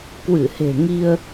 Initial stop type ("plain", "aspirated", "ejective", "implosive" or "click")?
plain